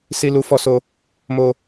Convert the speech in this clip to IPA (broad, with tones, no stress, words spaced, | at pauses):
si˦lu˦fɔ˦so˦ | mo˦